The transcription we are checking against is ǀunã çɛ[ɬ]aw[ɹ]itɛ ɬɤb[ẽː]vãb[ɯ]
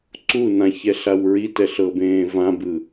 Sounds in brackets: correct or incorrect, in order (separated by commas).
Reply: correct, correct, correct, correct